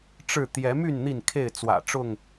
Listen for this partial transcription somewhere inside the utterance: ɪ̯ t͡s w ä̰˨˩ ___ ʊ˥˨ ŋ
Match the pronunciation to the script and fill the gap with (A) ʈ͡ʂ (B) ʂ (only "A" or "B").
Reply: A